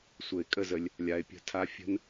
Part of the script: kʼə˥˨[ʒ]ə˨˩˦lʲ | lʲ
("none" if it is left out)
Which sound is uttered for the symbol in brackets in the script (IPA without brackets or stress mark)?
z